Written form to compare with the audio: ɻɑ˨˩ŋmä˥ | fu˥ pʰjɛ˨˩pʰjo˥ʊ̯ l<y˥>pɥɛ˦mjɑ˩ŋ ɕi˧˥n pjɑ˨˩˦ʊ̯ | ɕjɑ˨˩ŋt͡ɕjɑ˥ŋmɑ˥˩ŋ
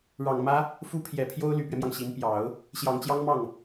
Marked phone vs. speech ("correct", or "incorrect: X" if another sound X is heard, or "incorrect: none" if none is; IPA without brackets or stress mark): incorrect: y˨˩